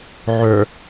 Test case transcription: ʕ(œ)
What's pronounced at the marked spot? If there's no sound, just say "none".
œ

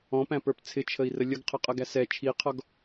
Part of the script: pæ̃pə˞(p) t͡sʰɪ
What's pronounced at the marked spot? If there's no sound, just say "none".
p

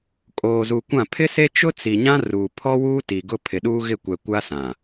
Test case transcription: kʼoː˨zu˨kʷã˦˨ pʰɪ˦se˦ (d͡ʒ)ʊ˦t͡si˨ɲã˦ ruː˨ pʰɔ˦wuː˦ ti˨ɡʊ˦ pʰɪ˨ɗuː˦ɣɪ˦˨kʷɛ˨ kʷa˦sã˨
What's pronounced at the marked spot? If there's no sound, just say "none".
t͡ʃ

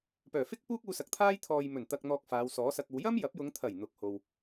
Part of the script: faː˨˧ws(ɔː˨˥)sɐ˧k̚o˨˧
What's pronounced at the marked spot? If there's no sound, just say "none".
ɔː˨˥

